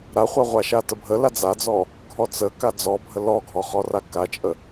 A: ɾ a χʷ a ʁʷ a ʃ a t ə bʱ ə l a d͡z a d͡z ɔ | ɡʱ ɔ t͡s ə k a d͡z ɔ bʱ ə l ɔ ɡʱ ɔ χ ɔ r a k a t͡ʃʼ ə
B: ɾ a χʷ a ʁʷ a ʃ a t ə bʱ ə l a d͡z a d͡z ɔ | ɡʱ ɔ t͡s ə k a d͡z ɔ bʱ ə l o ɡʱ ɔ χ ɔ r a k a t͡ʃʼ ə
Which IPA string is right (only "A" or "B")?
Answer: A